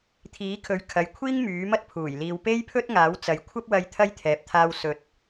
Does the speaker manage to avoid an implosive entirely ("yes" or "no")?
yes